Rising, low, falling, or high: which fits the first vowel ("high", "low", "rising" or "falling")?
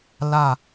falling